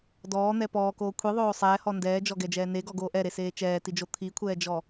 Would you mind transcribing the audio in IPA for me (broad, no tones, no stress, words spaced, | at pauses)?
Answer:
dɔːn̪ɛ pɔːkoː kʷʰiðˤoː sˤɛːhɔ ndɛːd͡ʒɔɡɛd͡ʒɛː neɡɔɡoː ʔɛɾeseː t͡ʃɛːtid͡ʒo t̪ʰikʷʰɛːd͡ʒɔ